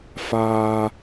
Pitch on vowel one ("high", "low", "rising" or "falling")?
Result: high